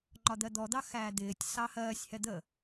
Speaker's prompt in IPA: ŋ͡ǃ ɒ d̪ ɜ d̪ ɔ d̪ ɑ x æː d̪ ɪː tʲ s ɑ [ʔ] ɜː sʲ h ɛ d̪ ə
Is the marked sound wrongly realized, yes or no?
yes